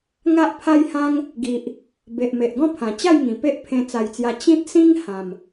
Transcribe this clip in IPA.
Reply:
ŋ a˦ ʔ pʰ a˦ j h ã˦ ŋ | ɡ i˨ ʔ | b e˨ ʔ m e˨ ʔ ɡ ɔ̃˦ pʰ ã˨˩ t͡ɕ a˥˧ j ŋ ĩ˨˩ p e˦ ʔ pʰ ẽ˧ t͡s a˨˩ j t͡s j a˧ t͡ɕ ĩ˦ t̚ s ĩ˦ ŋ h ã˨˩ m

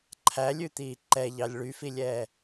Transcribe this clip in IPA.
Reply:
ǃʰ æ lʲ ʉ t̪ iː ǃ ɛ ʎ ɑ lʲ ɭ y f i lʲ ɛː

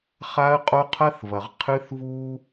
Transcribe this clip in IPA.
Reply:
χ a˦ ə̯ qʼ o˦ qʰ ɐ˦ θ v ɐ˨ ʁ qʰ ɨ˦ θ v u˦

